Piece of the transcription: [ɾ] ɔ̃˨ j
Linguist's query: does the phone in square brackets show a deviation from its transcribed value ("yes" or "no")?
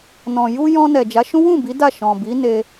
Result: yes